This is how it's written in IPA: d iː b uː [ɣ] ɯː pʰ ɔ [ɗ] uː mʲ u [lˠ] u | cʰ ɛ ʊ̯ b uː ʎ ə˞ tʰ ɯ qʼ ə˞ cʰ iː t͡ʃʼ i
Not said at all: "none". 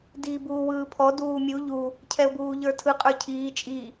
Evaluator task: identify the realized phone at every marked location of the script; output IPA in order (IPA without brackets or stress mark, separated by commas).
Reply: w, d, ʎ